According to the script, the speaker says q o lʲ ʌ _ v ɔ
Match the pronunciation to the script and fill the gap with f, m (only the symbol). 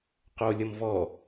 m